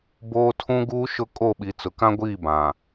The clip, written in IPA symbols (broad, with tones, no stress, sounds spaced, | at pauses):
b oː˦ tʰ ũ˦ ɡ uː˦ ʃ ʊ˦ kʼ o˦˨ ɓ i˨ t͡s ʊ˨ k ã˦ ɡʷ iː˦˨ b ã˨